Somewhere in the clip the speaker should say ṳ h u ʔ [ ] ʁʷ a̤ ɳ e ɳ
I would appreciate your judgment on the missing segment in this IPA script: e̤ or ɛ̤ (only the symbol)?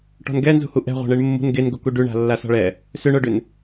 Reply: ɛ̤